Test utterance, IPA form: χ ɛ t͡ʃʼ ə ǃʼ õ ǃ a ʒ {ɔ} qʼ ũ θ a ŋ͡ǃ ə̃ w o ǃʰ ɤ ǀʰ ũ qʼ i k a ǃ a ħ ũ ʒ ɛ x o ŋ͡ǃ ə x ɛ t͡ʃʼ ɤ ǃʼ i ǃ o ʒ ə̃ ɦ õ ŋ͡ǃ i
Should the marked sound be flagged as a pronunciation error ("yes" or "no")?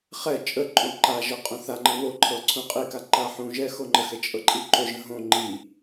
yes